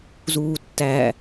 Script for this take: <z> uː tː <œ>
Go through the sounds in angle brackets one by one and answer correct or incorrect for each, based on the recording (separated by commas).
correct, incorrect